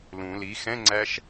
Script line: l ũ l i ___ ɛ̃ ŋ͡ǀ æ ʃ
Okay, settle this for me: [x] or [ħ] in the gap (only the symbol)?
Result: x